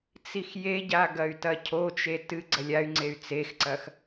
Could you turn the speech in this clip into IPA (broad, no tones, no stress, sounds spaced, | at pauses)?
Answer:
t͡s i x j e ɟ a ɡ ɐ y̯ t ɐ cʰ o t͡ʃ e t ɨ ɡ͡ǀ ɐ lʲ a y̯ ŋ͡ǀ e y̯ t͡s e x ǀ ɐ x